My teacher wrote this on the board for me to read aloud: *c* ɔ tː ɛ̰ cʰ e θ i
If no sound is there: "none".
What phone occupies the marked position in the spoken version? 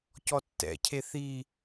c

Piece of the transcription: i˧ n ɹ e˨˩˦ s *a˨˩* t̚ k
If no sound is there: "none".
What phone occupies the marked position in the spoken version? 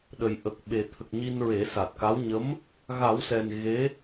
a˨˩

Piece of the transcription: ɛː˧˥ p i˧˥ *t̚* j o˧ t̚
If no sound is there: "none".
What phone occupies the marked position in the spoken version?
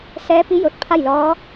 none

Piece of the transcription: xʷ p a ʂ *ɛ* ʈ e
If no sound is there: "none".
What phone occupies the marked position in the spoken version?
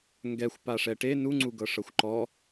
ɛ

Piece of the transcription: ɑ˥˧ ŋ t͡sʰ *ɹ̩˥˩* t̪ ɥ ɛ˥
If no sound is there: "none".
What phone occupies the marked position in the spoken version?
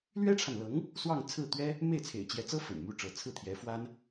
ɹ̩˥˩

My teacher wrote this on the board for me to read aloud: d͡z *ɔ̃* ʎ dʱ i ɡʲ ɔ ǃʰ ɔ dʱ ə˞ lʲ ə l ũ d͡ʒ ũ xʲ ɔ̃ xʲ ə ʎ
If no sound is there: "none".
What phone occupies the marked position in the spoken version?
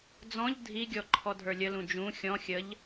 ɔ̃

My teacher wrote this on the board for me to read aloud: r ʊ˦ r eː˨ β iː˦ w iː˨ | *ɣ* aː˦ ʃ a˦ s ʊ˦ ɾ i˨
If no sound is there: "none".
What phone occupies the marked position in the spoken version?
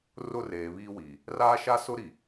r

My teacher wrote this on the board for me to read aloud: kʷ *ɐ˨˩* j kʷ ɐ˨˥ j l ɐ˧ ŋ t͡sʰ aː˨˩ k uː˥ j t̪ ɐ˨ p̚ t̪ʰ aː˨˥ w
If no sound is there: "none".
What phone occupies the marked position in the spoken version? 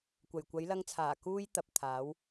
ɐ˨˩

